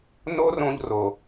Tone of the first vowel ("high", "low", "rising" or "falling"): high